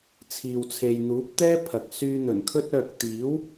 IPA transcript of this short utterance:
t͡sʰ iː˨ w t͡sʰ e˨ j n̪ uː˨˥ p̚ t̪ ɛː˥ pʰ ɐ˨ k̚ s yː˧ n̪ ɵ˨˩ n kʰ ɵ˥ t̚ œː˨ k̚ t̪ iː˨˥ w

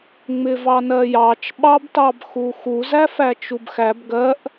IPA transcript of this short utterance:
ŋ͡m ɪ v ɑ n ɜ j ɑ t͡ʃ ɓ ɑ b t ɑ b x u x u z æ f æ t͡ʃ u b x æ b ɡ ɜ ʔ

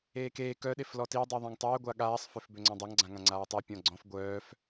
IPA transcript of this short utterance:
eː k eː k œ ɗ e f l ɔ t i dˤ i ðˤ ã ŋ tˤ œː ɡʷ a ɠ aː sˤ f ø f b ø ŋ͡ǀ ɔ̃ dˤ a ŋ ɡ͡ǀ ã ŋ ã ŋ͡ǀ aː tˤ e pʲ ɔ̃ ɡ͡ǀ ɔ̃ f ɡʷ œː f

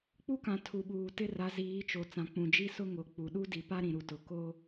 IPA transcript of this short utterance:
k͡p u˦ k ã˨ tʰ u˨ ɓ uː˨ t ɪ˦ r a˨˦ z iː˨˦ t͡ʃ o˨ t͡s ã˨ k͡p ũ˨ d͡ʒ i˦ s ʊ˦ ŋ o˨ k͡p u˨ ɗ u˦ d i˨ p a˦ ɾ ĩ˨ ɾ u˨ t ʊ˨ k o˦

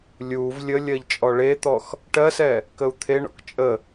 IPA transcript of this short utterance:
lʲ u v lʲ ə lʲ ɜ ʎ t͡ʃʼ ɔ ɭ e t̪ ɔ x | ʈ ɜ s ɛ | k ə u̯ t̪ʰ e ɳ ɔ̰ k t͡ʃʼ ə

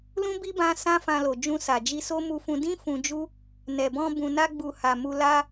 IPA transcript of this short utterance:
l ũ˦ b i˦ b ã˧ s ã˧ f ã˧ l o˨ d͡ʒ ũ˧ s a˨ d͡ʒ i˧ s o˦ m u˧ f ũ˧ d ĩ˦ f ũ˧ d͡ʒ u˦ | n ɛ˨ b ɔ̃˧ b ũ˨ n a˧ ɡ͡b u˨ h a˨ m u˧ l a˦

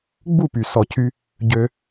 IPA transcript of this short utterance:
ɡ͡b u˦˨ p y˨ s ɔ˨ cʰ y˧ | ɟ ø˧

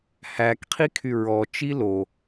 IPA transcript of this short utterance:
h æ k qʰ i kʰ y ɹ ɔ t͡ʃ i l o

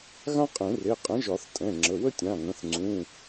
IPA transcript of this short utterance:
ɣ ã˥ qʼ ẽ˨˩˦ r e˩˧˩ qʼ ə̃˨˥ ʒ ɒ˨˩˦ θ tʼ ɛ̃˩˧˩ ŋ͡ǁ ə˩˧˩ w ə˥ tʲ ã˩˧˩ ŋ ə̃˩˧˩ θ ŋ͡ǀ ũ˩˧˩

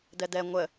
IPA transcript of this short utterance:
d ɛ d ɛ ŋʷ ə

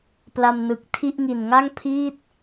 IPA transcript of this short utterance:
p l a˧ m n ɯ˨˩ k̚ tʰ i˥˩ ʔ ŋ i˨˩ n ŋ a˥˩ ŋ pʰ iː˥˩ t̚

